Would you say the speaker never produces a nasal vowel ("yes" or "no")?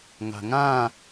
no